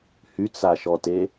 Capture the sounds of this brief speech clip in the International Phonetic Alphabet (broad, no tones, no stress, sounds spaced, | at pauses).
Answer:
h y t͡s a ʃ ɔ t e